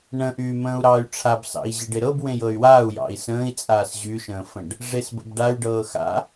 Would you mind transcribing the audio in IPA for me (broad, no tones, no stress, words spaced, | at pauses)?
ɳə̃ʔyː mə̃ːu̯ɾɑːy̯ʈ͡ʂʰab sɑ̰i̯ʑɪɖɪɾɤb wẽjɤy̯waːu̯ jɑ̰i̯sə̃ːi̯t͡sʼaːs ʑyʃə̃ːfə̃ɖ | ʐesbə̰bɖay̯ ɖɤːxa̰